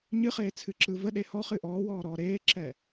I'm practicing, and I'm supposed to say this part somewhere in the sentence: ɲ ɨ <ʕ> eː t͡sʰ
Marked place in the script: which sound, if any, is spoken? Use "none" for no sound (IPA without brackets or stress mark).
χ